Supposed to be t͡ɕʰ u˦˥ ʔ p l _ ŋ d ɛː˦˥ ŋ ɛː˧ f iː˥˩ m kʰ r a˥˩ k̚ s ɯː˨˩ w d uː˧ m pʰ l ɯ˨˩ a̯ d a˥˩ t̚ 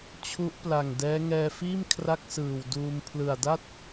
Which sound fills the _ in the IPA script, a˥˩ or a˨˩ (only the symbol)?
a˨˩